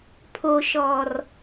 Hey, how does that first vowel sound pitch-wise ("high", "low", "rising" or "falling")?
high